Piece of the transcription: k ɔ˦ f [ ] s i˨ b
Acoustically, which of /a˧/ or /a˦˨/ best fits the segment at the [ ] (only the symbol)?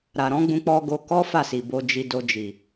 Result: a˦˨